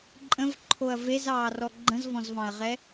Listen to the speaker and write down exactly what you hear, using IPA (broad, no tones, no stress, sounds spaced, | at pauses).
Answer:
ǃʼ ə̃ v ǃʰ o ɐ̯ v e z ɑː r ɔ ɡ͡ǃ ə̃ z v ɔ̃ z v ɑ̃ ɐ̯ ʁ ɛ